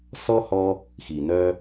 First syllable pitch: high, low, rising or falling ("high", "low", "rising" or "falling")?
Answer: high